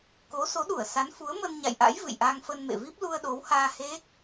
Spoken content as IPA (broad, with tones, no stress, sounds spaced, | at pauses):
k o˨˦ s o˨˦ ɗ u˧˩ ə̯ s a˨˦ n f u˨˦ ə̯ m ə˧ n ɲ a̰˧˨ j ʔ a̰˧˥ j v ɨ̰˧˨ j ʔ a˧ ŋ f ə˧ n m ḛ˧˨ v i˦˥ p̚ l u˧ ə̯ ɗ o˨˦ w h aː˧ h e˦˥ k̚